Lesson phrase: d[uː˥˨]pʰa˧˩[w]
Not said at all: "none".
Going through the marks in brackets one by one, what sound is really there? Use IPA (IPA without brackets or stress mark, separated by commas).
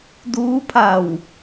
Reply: uː˧˥, w